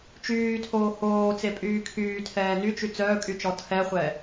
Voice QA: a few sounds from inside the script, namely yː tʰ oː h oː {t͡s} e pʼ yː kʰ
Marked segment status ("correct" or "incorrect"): correct